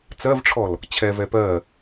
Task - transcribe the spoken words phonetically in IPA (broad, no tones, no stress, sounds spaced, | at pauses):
t͡s ɜ v ʈ͡ʂʰ ɔ l | t͡ɕʰ ɛ v ɛ p ɜ